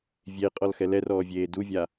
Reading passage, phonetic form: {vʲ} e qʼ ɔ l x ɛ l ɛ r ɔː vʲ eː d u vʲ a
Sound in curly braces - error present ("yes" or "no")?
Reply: no